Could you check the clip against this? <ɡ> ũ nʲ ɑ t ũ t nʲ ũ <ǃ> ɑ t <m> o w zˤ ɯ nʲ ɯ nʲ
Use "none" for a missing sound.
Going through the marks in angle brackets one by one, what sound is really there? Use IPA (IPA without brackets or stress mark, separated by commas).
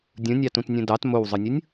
dʲ, d, m